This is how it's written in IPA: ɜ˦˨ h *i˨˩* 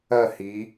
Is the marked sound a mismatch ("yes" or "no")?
yes